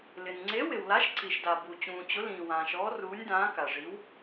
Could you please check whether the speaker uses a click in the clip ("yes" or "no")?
yes